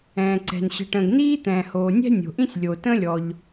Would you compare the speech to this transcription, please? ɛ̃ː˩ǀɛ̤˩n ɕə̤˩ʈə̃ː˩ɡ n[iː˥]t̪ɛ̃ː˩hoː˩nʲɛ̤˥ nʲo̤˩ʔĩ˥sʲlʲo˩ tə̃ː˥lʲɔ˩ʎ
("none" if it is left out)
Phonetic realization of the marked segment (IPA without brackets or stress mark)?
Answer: iː˥